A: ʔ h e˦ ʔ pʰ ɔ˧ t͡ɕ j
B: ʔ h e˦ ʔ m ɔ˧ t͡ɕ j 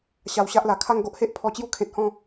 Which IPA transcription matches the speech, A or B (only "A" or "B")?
A